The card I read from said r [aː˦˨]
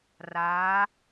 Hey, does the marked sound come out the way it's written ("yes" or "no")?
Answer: no